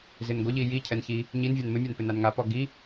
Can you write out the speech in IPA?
z ɪ n ɡʷ ə ʎ i j i cʰ ɛ n ç i | ɲ i n vʲ a n m ɪ mʲ a n p ɪ n a n ŋ a p ɔ ɡ i

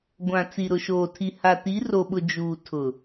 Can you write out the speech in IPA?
ɡʷ ã˨ t͡s i˨ ɾ ʊ˨ ʃ oː˨ tʰ i˨ h a˨ t i˨˦ r o˨ ɓ ʊ˨ d͡ʒ uː˨ tʰ ʊ˨

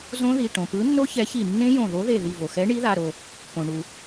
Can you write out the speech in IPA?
z õ˦˥ ð i˩˧˩ ʈ õ˩ p ɯ˨˥ nː o˦˥ ç ɛ˨˥ ç i˧˩ nː ẽ˦˥ j õ˧˩ ð o˨˥ ð e˧˩ ð i˧˩ v o˩ x ɛ˨˥ ɳ i˨˥ ð a˩˧˩ ɾ o˧˩ | p õ˩ ɳ u˩

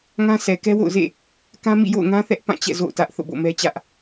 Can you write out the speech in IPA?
ŋ ã˦ sʰ ɛ˨ k ɛ˦ w o̰˦˨ ʊ̯ z ḛ˦˨ | k ã˦ m ḭ˦˨ j o̰˦˨ ʊ̯ ŋ ã˦ θ ɛ˦ ʔ p ã˦˨ t͡ɕ ɛ̰˦˨ z o̰˦˨ ʊ̯ t ä˦ ʔ θ o̰˦˨ b o̰˦˨ m ɛ˦ t͡ɕ ä˦ ʔ

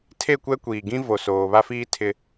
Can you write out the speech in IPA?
tʰ e˦˨ kʷ ɛ˦ kʷ iː˨ ɡ ĩ˦ v o˨ s oː˨ β a˦ f iː˦ tʰ ɪ˦

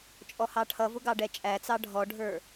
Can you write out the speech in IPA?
t͡ʃʼ ɔ h ɑ ʈʰ ʌ v ʊ ɡ ɑ ɖ ɛ t͡ʃʼ æ t͡s ɑ ɖʱ ɔ ɖʱ ə˞

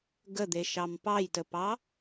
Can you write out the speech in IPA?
ɡ ə d̪ e ʃ ɑ m p ɑ j t ə p ɑ

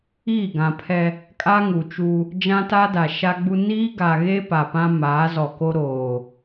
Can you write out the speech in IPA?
iː˦˨ ɡ ã˨ pʰ ɛ˦ | kʼ a˦ ŋ u˨ t͡ʃ u˦ | d͡ʒ ã˦ t a˦ d a˨ ʃ a˦ ɡ͡b u˦ n iː˦ ɡ a˨ ɣ e˦ p a˨ p ã˦ m aː˨˦ z ɔ˨ k o˦ ɾ oː˨

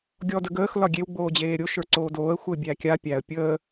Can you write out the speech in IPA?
ɡʲ ɔ d ə ɡ əː x l ɒ ɡʲ e w ɡ͡b oː d͡ʑ eː ɾʲ o ʃ ə˞ ǀ oː d oː ə̯ xʷ ə ɪ̯ bʲ æ kʲ a pʲ æ ə̯ pʲ əː

